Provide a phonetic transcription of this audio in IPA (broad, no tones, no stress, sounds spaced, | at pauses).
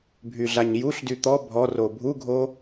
bʱ y ɮ a ɲ j u ɬ d y t̪ ɔ bʱ ɔ r o bʱ u ɡʱ o